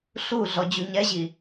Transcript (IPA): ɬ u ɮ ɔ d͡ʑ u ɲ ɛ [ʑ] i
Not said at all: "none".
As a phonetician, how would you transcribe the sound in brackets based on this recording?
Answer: ʑ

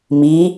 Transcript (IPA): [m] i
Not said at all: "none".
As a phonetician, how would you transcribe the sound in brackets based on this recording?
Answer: m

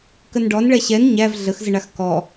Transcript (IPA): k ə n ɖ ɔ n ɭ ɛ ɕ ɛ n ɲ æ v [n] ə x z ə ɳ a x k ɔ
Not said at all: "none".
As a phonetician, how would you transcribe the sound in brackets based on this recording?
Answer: ɮ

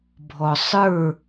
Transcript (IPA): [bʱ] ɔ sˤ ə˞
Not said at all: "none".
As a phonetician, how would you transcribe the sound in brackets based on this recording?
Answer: bʱ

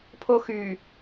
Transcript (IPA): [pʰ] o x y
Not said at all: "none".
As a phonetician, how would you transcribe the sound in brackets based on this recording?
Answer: pʰ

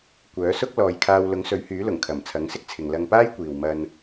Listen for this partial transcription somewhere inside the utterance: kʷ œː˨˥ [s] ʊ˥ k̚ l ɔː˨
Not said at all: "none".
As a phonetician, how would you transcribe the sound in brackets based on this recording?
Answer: s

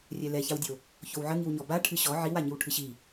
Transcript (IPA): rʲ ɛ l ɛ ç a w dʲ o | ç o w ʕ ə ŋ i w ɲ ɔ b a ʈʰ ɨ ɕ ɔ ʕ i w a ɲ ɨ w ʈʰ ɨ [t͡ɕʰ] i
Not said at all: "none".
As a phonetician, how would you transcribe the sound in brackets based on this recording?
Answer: ɕ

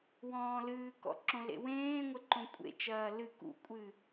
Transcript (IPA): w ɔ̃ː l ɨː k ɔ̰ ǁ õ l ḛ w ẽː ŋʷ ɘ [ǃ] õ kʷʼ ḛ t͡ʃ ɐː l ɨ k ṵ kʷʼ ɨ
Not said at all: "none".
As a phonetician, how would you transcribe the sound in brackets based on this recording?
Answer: ǃ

